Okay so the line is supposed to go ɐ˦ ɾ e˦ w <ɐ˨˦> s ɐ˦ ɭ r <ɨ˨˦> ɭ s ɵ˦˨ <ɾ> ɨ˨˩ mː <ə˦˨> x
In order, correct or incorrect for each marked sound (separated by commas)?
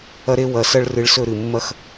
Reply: correct, correct, correct, incorrect